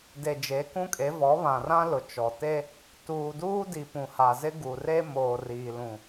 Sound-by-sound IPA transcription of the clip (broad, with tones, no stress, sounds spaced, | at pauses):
d e˨ d͡ʒ e˨˦ k ũ˦ kʼ e˨˦ v ɔ˨˦ β ã˨ r ã˦ l ʊ˨ t͡ʃ ɔ˨ t e˦ | t uː˨ d uː˦ d i˨ p ũ˨ h a˨ z ɪ˦ ɡ u˨ r e˦ m oː˨ r iː˨ l ũ˨